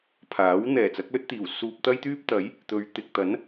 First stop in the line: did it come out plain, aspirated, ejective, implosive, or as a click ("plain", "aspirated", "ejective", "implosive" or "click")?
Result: aspirated